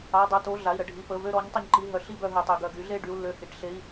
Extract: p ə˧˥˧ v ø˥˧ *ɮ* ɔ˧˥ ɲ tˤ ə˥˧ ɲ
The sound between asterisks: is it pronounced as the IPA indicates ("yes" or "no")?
no